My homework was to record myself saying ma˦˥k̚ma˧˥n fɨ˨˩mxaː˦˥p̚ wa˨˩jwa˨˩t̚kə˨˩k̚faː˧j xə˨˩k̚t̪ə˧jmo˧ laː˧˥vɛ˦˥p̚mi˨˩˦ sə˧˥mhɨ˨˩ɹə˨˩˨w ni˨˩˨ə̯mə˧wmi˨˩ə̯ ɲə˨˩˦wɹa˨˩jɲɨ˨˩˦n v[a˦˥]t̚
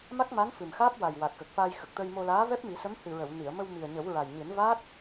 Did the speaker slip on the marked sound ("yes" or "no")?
no